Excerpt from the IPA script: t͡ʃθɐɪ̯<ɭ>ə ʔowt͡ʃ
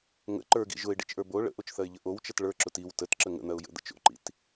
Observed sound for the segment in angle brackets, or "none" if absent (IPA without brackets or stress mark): ʎ